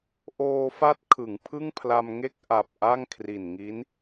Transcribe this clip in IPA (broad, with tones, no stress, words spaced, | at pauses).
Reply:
ʔoː˧fa˦˥t̚ kʰɯ˩˦ŋpʰɯ˥˩ŋpʰla˧m ŋe˦˥k̚ʔa˨˩p̚ ʔa˥˩ŋkʰri˨˩nŋi˦˥n